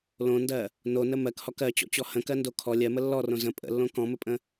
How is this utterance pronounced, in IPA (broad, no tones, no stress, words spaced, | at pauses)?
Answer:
lõndɜ | nonə mɜkhɔk ɜt͡ɕɔ̰t͡ɕɔ hə̃kɜndo kʰɔ lʲɜmə lːɔrõ zə̃ pʼə̰lːõ kɔ̃məpʼə̃